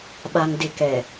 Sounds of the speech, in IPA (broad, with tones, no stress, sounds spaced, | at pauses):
ɓ a˨ ŋ d ɪ˨ k ɛ˨